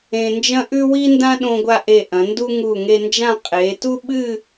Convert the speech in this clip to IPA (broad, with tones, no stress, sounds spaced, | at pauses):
ẽ˧ n d͡ʒ ɐ̃˥ ʔ ʉ˥ w i˥ n d ã˥ ɗ õ˧ ɡʷ a˧ ʔ e˧˩ ʔ ɐ̃˩˧ n d u˥ ŋ u˧˩ ŋ e˧ n d͡ʒ ã˥˧ qʼ e˩˧ t u˥ ɓ ɨ˥˧